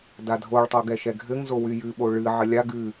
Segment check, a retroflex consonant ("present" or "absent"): present